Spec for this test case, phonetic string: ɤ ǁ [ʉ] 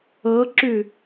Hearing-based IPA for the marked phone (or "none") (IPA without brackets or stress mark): ʉ